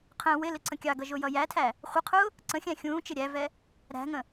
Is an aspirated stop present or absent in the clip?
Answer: present